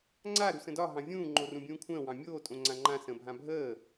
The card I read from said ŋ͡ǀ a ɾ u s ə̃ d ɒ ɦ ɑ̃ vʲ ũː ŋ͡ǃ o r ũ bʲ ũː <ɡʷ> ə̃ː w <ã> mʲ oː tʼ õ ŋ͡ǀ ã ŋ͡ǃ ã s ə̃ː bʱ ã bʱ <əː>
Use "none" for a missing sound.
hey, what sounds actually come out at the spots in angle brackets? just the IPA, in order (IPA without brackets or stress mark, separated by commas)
kʷʰ, ɑ̃, əː